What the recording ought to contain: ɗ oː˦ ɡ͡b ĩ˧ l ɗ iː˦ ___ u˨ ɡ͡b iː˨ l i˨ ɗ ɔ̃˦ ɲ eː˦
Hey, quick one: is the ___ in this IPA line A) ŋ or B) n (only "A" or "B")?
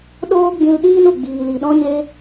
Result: B